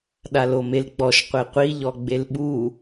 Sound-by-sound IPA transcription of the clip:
ɗalomelɡ͡bɔʃ qʷeqʷi ʎɔɡ͡belɓu

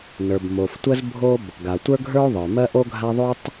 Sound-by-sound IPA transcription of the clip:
nə˞˩b mo˩ftʷə˥zbʱo˥b | ɡa˩tʷə˞˥ɡʱə˞˥o̯ðˤə˞˩ mɜ˥ʔo˥ɡʱa˥ ðˤo˥tˤ

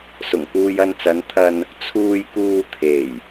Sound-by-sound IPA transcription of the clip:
sʊ˨˩ŋkuː˧j ɐ˧nt͡sɐ˨˧nt̪ʰɐ˧n | t͡sʰuː˧jkuː˧ t̪ʰe˨˩j

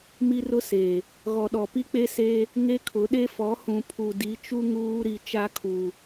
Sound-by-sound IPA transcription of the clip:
mi˦rʊ˦seː˨ | ɣɔ˨ɗɔ˨ pi˦k͡pe˦seː˦ | ŋe˦kʰʊ˨˦ɗe˦ fɔ˨˦hũ˨ pʰu˨di˨˦t͡ʃu˦ ŋuː˦ɾi˦˨ t͡ʃa˦kʰuː˨

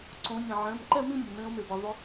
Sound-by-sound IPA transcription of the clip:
ǀõ˨˦ nʲẽ˩ʕɛ̃˩˧˩mǃɛ˥˧mĩ˥˧ nʲɛ˩mẽ˨˦ʊ̯me˩bɛ˩ ðˤʊ˨˦

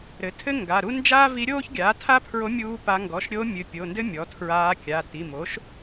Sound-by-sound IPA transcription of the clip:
ɾɘ˩˥tʰɘ˥ ŋɡa˩˧˩ɾu˥ nd͡ʒaː˥vi˧˥ɾʲoː˥ç ɡʲaː˩˥tʰa˥pʰɹo˧˥ mʲuː˥pa˧˥ ŋɡɔ˩˧˩ʃɾʲo˧˥ mʲɨ˩˧˩pʲo˩˧˩ndɘ˥ mʲɔ˩˥tʰɹaː˧˥ kʲa˩˧˩ ti˩˧˩mo˩˥ʃ

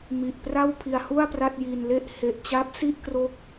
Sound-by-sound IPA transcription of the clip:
mi˨˩ʔpra˥˩wpʰi˧a̯hu˥˩a̯ pra˥˩t̚ji˧nle˥˩ʔ he˨˩ʔt͡ɕa˦˥p̚si˥˩ʔ kro˦˥k̚

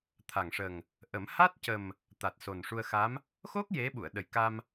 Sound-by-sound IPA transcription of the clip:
t̪ʰa˨˩ŋʂə˨˩ŋ | ʔə˨˩˦m ha˦˥t̚cə˨˩m | t̪a˨˩t̚so˨˩nʂu˧ə̯xa˧˥m | xo˦˥k̚ je˧˥ ɓu˨˩˨ə̯ɗə˨˩jka˧m

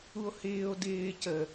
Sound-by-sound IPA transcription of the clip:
uo̯hɪːo̯ dɪː cə

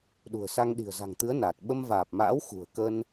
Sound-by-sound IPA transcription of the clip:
ɗṳ˨˩ə̯ sa˧ŋɗi̤˨˩ə̯za̤˨˩ŋt̪ɨ˨˦ə̯ naː˨˩t̚ ɓə˧m vaː˨˩p̚ma̰ː˧˥w xṳ˨˩ə̯kə˧n

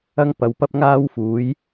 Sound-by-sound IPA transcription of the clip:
ɐ˥ŋ pɐ˨˧wpɐ˥p̚ŋaː˥wfuː˨˥j

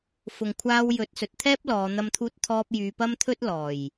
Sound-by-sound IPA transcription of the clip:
fʊ˨ŋkʷʰaː˧wjɵ˨˥t̚ sɵ˨t̚t̪ʰɛː˥p̚lɔː˨˧ n̪ɐ˧mt̪ʰuː˧t̚t̪ʰɔː˧p̚ jyː˧pɐ˥mt̪ʰɵ˥t̚ lɔː˨˩j

